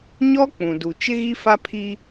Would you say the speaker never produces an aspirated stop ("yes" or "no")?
no